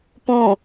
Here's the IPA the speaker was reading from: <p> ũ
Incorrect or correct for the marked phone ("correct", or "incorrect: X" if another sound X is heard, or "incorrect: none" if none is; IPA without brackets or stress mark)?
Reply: correct